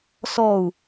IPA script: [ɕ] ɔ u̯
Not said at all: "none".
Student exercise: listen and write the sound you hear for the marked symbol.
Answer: s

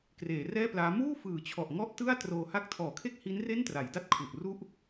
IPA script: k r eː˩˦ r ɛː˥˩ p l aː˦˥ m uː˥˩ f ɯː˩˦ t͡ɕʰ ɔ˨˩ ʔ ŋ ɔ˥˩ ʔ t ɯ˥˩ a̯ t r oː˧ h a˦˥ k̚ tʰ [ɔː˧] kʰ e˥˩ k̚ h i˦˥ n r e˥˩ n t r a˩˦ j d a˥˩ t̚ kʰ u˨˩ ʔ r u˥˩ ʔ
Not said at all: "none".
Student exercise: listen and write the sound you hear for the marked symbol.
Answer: ɔː˩˦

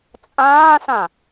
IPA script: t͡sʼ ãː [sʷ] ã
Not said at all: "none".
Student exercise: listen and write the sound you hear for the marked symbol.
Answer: s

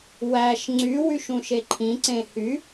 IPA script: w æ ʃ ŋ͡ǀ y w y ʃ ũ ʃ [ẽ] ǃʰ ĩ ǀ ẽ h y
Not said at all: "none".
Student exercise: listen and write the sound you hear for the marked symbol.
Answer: e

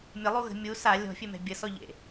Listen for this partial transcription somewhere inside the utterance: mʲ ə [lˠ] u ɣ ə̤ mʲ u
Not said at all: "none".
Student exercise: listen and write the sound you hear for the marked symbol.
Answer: lˠ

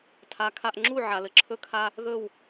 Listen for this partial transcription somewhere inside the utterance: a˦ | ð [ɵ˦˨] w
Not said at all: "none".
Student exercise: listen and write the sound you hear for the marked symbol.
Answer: ɵ˦˨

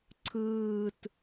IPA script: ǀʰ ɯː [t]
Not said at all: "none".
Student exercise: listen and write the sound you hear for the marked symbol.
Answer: t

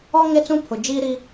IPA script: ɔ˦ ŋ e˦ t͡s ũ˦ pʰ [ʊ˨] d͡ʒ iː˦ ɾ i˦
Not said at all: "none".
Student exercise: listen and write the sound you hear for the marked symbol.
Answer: ʊ˨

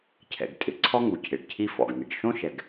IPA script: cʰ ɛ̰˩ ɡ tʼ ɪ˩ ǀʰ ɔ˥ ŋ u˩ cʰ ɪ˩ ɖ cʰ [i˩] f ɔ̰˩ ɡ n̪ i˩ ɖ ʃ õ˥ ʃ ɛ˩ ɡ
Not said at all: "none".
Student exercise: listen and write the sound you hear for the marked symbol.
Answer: i˥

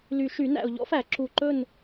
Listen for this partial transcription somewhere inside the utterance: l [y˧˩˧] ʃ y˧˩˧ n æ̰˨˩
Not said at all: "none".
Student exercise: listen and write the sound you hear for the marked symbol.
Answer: y˨˩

